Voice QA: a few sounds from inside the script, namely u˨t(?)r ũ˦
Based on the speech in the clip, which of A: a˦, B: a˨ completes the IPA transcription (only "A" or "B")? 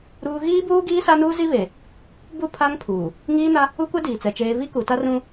A